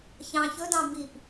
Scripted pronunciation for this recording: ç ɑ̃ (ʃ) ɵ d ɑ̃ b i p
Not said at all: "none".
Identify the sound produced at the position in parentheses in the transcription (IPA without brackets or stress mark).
ç